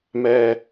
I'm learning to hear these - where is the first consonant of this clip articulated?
lips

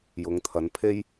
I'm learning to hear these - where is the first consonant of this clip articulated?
palate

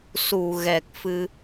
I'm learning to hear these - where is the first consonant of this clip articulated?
tongue tip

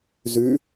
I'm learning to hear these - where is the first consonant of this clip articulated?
tongue tip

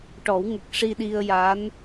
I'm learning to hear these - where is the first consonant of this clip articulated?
retroflex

